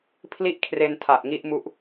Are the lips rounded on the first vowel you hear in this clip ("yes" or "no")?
no